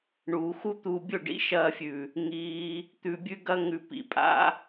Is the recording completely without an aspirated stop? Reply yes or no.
yes